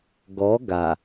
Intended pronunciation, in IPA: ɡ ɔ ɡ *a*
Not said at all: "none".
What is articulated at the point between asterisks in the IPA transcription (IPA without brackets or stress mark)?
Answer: a